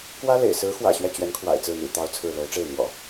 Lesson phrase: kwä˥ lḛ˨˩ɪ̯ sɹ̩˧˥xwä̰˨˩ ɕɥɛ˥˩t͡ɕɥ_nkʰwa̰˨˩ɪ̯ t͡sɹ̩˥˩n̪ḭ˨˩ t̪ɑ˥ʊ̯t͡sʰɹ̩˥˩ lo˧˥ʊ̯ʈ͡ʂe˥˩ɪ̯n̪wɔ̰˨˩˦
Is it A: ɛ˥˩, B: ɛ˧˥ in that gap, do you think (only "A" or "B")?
B